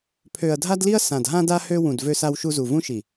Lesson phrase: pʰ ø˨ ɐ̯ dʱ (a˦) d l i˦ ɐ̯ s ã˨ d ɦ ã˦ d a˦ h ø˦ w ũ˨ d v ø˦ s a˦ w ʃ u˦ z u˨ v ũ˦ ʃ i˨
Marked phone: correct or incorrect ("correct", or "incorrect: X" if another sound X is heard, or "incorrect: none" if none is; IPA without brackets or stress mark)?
correct